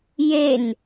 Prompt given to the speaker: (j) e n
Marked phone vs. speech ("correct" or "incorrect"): correct